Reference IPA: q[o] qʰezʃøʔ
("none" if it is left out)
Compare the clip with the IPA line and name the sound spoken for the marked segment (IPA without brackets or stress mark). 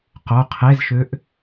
o